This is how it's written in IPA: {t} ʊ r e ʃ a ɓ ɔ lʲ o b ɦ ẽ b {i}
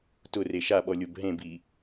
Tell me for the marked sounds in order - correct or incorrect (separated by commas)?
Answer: correct, correct